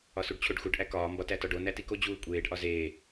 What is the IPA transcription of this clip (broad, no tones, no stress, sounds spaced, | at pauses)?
ɒ s u ɖ t͡ɕʰ o ɖ x u ɖ ʔ æ k ɒː m b ɒ t æ t ɒ ɖ o n æ t i k o d͡ʑ uː kʷʼ eː ɖ ʔ ɒ z eː